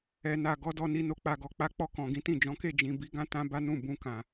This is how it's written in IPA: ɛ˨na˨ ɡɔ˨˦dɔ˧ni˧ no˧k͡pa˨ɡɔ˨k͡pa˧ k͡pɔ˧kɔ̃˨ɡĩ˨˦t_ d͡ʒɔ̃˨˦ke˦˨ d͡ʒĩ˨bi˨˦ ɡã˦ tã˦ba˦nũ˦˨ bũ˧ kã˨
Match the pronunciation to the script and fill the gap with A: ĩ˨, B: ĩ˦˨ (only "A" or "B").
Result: B